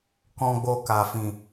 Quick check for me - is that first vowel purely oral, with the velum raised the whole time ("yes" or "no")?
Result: no